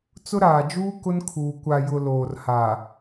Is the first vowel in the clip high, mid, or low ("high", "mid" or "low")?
high